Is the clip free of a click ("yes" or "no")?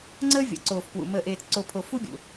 no